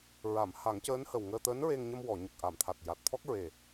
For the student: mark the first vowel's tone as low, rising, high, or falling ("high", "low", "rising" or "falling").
low